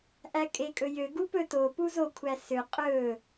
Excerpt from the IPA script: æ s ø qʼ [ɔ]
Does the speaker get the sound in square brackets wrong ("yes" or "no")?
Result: yes